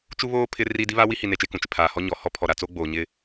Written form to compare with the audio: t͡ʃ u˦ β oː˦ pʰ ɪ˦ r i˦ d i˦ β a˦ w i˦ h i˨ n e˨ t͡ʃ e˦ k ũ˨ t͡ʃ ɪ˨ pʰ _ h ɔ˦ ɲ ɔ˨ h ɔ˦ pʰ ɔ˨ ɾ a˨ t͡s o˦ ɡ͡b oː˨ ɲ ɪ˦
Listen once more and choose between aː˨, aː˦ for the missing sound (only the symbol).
aː˨